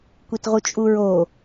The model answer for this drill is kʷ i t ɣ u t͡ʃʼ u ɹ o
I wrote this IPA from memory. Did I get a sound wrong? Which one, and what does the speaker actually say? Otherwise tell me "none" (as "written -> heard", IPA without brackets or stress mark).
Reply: ɣ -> ʁ